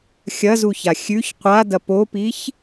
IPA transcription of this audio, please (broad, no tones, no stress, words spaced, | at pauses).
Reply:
xʲɐzuça xʲʉç qʷadɐ popiç